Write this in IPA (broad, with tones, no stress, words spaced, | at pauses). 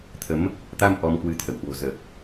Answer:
t̪ʰə˨˦m | t̪a˧m ʔɔ˧mkwɨ˨˦t̪ʰə̰˧˨w hwo̤˨˩zəː˨˩k̚